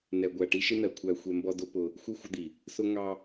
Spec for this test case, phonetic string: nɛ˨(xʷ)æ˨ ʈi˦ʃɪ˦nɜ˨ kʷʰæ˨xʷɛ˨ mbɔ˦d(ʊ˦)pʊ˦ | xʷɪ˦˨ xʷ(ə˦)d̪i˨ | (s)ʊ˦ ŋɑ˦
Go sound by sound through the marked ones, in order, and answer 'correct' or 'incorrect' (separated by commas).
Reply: incorrect, correct, correct, correct